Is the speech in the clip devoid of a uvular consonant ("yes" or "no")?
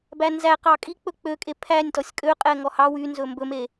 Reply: no